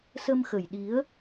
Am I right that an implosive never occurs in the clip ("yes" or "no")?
no